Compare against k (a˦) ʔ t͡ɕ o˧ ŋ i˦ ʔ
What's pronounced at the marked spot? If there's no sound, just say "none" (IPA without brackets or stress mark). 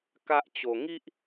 a˦